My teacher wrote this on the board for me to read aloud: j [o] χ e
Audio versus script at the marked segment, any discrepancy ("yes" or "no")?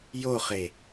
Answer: no